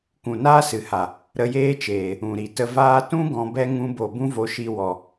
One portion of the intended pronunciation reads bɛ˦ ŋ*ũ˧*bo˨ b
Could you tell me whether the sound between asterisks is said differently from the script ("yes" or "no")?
no